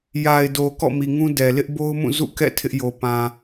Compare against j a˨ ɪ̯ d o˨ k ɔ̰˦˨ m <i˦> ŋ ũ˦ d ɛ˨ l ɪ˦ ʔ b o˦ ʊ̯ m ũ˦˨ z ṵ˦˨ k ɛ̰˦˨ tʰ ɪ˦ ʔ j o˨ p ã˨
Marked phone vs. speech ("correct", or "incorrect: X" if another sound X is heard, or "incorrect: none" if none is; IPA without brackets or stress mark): incorrect: i˨